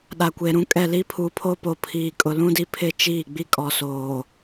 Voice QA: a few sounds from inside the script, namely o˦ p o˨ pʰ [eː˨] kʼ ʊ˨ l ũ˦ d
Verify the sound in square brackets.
incorrect: iː˨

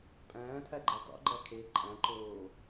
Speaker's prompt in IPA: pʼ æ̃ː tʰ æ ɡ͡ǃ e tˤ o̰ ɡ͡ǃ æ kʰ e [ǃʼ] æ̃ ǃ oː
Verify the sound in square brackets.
correct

